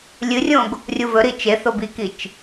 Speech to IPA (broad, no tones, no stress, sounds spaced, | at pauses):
lʲ ɨ rʲ õ ɡ | rʲ u v ɵ ɾ i t͡ʃ e θ o b i k i t͡ʃ